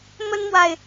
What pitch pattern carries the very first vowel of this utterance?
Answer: high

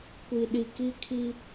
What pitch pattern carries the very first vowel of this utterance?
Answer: low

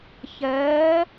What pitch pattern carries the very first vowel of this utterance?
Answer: rising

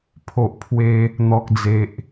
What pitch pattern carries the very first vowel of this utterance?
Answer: low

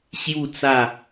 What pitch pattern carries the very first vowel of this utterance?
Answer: falling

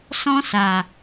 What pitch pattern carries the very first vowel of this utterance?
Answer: high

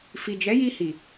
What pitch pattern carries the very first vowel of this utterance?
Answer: low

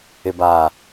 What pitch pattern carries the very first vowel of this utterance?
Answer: low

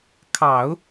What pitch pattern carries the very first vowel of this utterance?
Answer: low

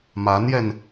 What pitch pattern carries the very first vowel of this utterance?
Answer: rising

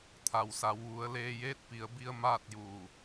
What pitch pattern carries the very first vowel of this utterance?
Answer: low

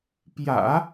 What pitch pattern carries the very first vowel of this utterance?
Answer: low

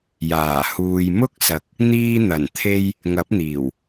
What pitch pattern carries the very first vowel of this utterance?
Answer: low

